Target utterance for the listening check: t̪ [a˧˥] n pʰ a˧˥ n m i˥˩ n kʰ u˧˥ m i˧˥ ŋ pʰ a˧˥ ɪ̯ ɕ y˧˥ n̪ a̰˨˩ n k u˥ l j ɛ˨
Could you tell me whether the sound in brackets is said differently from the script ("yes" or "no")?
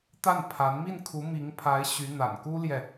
yes